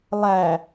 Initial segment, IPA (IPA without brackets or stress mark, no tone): lˠ